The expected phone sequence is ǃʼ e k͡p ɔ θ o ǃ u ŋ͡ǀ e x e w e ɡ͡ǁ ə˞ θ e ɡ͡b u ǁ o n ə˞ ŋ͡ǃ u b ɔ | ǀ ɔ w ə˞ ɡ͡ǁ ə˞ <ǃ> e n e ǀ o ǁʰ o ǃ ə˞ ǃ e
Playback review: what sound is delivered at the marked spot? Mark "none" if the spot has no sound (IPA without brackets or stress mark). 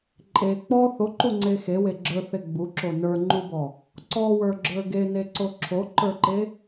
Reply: ɡ